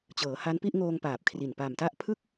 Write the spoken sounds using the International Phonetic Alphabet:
t͡ɕɤː˩˦ha˦˥npi˥˩ʔ ŋoː˧ŋ paː˨˩p̚kʰri˨˩n pa˨˩mta˥˩ʔpʰɯ˥˩k̚

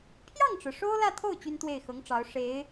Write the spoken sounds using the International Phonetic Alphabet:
pʰjɑ˥˩ŋʈ͡ʂɻ̩˩ ʂo˥ʊ̯lä˥˧t̪ʰo˥˩ʊ̯ t͡ɕy˥nt̪we˥˩ɪ̯xɤ˧˥ŋ ʈ͡ʂɑ˧˥ʊ̯ ʂe˧˥ɪ̯

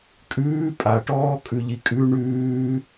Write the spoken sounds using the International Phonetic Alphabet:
kʼʉː pʼaʈɔːkʼʉ ʎikʼʉ ɳʉː

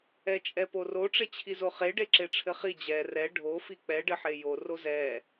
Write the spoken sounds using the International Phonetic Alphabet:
ɛt͡ʃʼɛporo ʈ͡ʂet͡ɕʰizoχe ɖeǁeʈ͡ʂʰɘχi d͡ʑɛ rɛ ɖʱo fik͡pɛ ɖɘħejo rozɛ

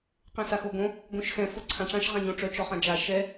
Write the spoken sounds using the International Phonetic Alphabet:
qɛ̃saxoɡõ | ɡõʃxɛ̃ foǀʰãʈ͡ʂãʃ ʁãɲõʈ͡ʂœ t͡ʃɔχãd͡ʒa ʃɛ

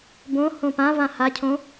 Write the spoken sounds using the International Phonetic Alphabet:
bõ hõpã vãhacʰõ

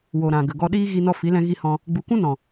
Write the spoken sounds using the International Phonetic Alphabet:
wo˨ ɾã˨ ɡə˨ɡɔ˧ɗiː˦ ɣi˧nɔ˧fi˨˦lɛ̃˧ ɣi˧hɔ̃˧ | ɡ͡bu˨kʷũ˦nɔ̃˨

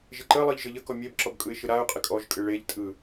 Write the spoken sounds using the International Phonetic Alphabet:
ʒɪǃəlˠɯʎ ʒəʎəkɔ mʲebǁɔb kʼɯɪ̯ʃɯɾaʊ̯qʼɪ kʼɔʒkʼɨ ɭeʎtʼɯ

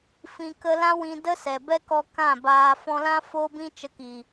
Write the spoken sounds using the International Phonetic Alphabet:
fĩ˧kə˦ lã˦wĩ˧də˦sɛ˨ bɛ˦kɔ˧ kã˦˨baː˧ fɔ̃˧lã˦ foː˦bĩ˦ t͡ʃə˧ki˨

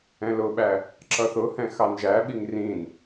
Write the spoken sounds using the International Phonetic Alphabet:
ɛ̃lʊɓæ | ǁʌθʊhɛ̃ xɑnʒæɓiŋ rĩn

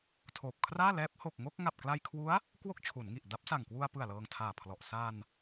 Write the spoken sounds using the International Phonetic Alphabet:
tʰoː˨˩p̚kʰraː˥˩ lɛː˦˥p̚ ho˨˩k̚ŋo˥˩k̚ ŋa˨˩p̚kla˧jkʰwu˦˥a̯ | kwo˥˩k̚t͡ɕʰu˩˦nŋi˨˩ʔda˦˥p̚ sa˨˩ŋkwu˧a̯pɯ˨˩a̯ lɤː˧ŋtʰaː˨˩pʰlɔ˨˩ʔ sa˧n

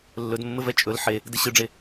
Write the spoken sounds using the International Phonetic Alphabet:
lːɵdmːɘvɛ t͡ʃʼɵl ħe | dɘɕɯɖ͡ʐe

